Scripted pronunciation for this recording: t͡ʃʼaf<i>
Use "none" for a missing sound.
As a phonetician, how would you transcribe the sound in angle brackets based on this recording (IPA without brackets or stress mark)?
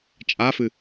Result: ɨ